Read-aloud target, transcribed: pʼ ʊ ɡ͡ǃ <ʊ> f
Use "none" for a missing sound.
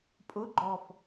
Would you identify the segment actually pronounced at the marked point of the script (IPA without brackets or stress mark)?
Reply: ɔ